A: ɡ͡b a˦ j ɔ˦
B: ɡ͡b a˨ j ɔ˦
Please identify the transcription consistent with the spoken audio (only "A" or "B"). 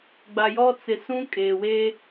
B